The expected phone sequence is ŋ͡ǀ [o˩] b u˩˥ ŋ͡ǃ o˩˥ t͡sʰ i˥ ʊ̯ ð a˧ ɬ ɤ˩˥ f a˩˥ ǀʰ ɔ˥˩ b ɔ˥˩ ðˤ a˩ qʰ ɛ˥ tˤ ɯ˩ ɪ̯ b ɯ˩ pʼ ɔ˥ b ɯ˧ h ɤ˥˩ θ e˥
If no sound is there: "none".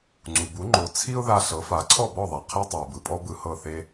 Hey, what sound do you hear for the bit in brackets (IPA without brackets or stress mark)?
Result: u˩